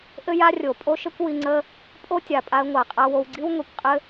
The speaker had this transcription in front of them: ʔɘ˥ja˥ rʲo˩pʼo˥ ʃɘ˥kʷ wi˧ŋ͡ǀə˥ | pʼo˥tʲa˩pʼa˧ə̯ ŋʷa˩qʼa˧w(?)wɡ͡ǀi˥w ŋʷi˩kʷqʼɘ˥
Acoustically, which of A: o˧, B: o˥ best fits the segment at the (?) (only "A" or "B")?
A